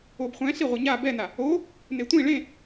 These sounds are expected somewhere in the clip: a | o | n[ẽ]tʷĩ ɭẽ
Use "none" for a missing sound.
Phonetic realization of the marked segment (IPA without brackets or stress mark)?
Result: e